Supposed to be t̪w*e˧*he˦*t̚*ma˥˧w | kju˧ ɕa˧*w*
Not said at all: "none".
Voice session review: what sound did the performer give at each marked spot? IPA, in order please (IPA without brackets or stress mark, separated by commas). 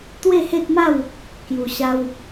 e˥˧, t̚, w